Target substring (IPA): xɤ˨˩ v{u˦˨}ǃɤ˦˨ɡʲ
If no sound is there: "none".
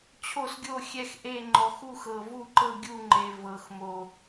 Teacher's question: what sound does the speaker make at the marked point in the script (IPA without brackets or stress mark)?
u˦˨